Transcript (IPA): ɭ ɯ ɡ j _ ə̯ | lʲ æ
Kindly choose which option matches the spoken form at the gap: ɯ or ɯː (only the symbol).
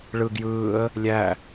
ɯː